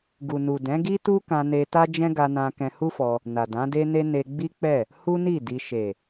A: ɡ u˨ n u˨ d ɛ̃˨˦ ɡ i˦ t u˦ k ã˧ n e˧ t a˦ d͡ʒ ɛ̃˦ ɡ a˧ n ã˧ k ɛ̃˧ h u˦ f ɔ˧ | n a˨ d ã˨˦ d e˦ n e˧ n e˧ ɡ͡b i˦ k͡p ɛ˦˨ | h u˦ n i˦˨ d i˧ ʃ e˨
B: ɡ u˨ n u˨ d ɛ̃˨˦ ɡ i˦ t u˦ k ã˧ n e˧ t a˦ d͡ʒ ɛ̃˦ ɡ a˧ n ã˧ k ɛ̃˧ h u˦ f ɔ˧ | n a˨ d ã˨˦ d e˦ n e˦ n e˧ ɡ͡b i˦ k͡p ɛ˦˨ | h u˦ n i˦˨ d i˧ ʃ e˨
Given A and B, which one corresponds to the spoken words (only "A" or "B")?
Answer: B